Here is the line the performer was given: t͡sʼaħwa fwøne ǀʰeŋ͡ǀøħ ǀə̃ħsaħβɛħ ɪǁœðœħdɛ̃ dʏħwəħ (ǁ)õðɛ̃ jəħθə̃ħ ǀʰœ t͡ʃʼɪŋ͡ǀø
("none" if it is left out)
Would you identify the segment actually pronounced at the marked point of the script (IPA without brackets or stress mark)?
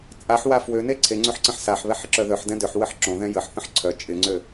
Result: ǁ